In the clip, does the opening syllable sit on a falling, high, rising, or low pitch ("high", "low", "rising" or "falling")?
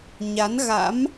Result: rising